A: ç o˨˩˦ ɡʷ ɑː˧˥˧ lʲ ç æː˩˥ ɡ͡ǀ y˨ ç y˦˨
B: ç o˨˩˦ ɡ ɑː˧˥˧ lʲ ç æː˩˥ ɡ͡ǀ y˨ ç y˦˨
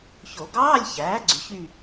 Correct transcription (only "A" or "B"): B